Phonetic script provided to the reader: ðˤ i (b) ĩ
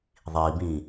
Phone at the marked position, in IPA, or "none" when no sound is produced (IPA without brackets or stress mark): b